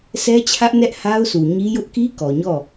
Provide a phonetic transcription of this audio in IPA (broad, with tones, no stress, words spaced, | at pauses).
sɛ˦t͡ɕʰä˦ʔnɛ˦ʔ ha˦ʊ̯ su˨ɲi˦ jʊ˦ʔki˦ kɔ˨ɲɔ˦˨